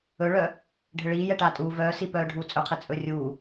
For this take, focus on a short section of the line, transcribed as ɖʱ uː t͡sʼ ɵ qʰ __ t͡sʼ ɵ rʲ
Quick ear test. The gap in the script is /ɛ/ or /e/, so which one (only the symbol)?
e